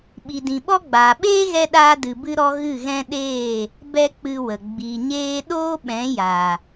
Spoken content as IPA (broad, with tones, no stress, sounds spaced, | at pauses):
ɓ i˨ d ĩ˨ ɓ ɔ˦ ɡ͡b aː˨ ɓ eː˦ ɣ ɛ˧ ɗ aː˧ d ɨ˨ b ɨ˧ ɾ ɔ˧ ɣ ɨ˦˨ ɣ ɛ̃˦ ɗ eː˦˨ | b ɛ˦ k͡p ɨ˧ w ə˨ ɡ͡b i˨ ɲ eː˧ ɗ oː˦ ɓ ɛ̃˨˦ j a˨